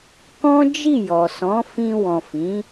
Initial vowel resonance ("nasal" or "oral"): nasal